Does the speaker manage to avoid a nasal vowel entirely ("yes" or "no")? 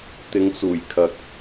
yes